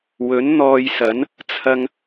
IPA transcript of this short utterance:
wɵ˨˥nn̪ɔː˧jsɐ˨˥n | t͡sʰɐ˥ŋ

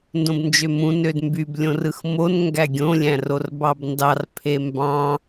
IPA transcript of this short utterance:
ndõbnd͡ʒømũ nødmbyb lʲõrɯxmon ŋɡæɡʲõ lʲæ̃rorbɑbndɑr pʰembɑ̃

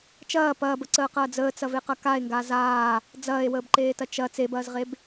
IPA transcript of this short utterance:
t͡ʃɐː pɐːbəǀəːqɐː d͡zəːt͡sɐveqɐ kae̯ŋɡa zaː | d͡zɐːe̯wəːbǃeːtɐ t͡ʃɐ t͡sebɐːzʁeb

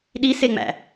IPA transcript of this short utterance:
ɗiseŋ͡mæ̰

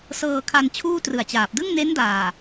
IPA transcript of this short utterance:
sɤː˧ kʰa˧n t͡ɕʰuː˥˩trɯ˨˩a̯t͡ɕaː˨˩p̚ dɯ˥˩ŋne˦˥ndaː˨˩

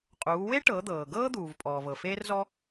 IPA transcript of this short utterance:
qʼuː˩˧we˥ʈɤ˩˧d̪ɤː˩ ɡɤː˥d̪uː˩vpʼɔː˩ vɤ˩feː˧rzɔ˧

